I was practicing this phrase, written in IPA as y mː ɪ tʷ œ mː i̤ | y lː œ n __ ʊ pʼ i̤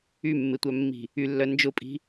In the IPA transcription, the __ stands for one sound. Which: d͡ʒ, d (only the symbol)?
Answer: d͡ʒ